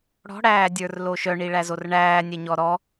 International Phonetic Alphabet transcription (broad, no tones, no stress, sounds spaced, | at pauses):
ɽ ɔ̤ ɽ æː dʲ ə˞ r l o ʃ œ ɳ i ɭ æ z o r ɳ æː nʲ ɛ ɲ ɔ ɾ ɔ